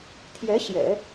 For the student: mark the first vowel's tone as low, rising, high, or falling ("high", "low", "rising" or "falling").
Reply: rising